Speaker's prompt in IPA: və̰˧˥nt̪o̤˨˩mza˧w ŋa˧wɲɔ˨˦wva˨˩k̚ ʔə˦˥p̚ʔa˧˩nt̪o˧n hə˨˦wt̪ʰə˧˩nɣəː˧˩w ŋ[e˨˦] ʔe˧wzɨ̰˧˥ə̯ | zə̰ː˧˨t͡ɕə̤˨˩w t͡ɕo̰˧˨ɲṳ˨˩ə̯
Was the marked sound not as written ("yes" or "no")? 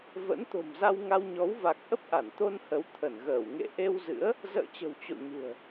yes